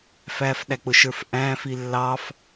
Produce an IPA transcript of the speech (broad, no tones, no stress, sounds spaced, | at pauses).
f æ f ɗ æ k͡p ʊ ʃ ə˞ f ʔ æ̃ f i lː ɑ f